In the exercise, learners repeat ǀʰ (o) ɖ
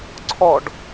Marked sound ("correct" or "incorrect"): incorrect